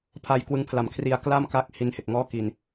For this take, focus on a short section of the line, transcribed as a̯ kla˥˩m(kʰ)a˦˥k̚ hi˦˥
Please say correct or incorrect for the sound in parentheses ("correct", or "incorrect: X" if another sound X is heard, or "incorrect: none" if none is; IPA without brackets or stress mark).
incorrect: k